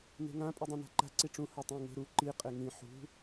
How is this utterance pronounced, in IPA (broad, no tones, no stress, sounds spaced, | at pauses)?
n e̤ ŋ ã pʼ i dˤ ĩ n a̤ ǃ a̤ ǀ i ʈ͡ʂ ũ h ɤ tˤ ĩ ŋ e̤ ɾ u ǃ i qʼ e ŋ ĩ ħ ṳ